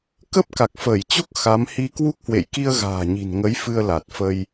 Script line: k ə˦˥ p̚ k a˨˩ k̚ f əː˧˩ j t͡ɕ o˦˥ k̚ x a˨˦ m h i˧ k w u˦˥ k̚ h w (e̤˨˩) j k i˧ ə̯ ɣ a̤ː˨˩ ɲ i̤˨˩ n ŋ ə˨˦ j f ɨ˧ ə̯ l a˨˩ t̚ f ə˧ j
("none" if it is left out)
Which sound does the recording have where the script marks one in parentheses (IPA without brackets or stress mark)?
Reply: ḛ˧˨